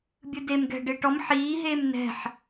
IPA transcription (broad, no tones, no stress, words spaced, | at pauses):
bʲɯdem ɡɛ̤ ɖeʈɔm ħiː ɦeːmnɛ̤ħ